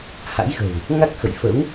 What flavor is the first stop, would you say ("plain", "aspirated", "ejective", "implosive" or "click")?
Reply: plain